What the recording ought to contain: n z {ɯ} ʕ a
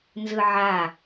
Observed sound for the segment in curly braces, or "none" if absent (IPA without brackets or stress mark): ɯ